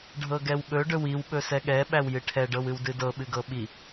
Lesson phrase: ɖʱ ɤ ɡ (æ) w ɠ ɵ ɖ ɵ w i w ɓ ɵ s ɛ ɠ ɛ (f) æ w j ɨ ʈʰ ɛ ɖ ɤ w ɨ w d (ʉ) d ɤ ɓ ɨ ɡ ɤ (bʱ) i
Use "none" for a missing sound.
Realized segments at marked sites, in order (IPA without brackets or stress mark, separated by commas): ɛ, ɓ, ɨ, ɓ